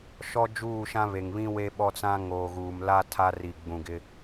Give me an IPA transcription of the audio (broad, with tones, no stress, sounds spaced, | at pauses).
ʃ ɔ˦ d͡ʒ uː˦˨ ʃ ã˦ β e˨ ŋ β ĩ˦ w e˦ ɓ ɔ˦ t͡s ã˦ ŋ oː˨ ɣ uː˨ m l a˦ tʰ a˦ r i˨ ɡ͡b ũ˨ ɡ ɪ˦